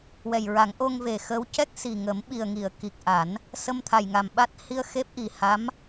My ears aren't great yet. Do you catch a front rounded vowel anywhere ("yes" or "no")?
no